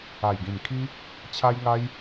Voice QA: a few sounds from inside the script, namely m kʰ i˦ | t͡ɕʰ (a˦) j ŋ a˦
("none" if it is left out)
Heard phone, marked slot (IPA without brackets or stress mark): a˦